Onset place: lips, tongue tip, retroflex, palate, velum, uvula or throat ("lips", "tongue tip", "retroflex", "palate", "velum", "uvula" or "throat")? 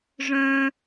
retroflex